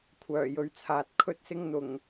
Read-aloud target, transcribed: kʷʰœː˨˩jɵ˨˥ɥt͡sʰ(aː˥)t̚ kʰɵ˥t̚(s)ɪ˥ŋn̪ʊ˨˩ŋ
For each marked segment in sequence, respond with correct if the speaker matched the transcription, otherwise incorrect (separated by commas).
incorrect, correct